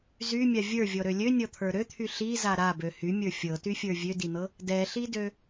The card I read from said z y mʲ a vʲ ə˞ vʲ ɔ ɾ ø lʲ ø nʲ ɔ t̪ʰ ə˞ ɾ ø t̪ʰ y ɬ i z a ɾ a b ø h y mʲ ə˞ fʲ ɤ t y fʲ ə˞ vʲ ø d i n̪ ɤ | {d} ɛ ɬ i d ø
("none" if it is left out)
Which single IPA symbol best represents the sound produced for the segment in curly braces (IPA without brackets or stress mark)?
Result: d